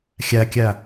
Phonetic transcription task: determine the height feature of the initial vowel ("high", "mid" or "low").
low